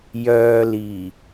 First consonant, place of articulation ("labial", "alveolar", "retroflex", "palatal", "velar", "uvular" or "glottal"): palatal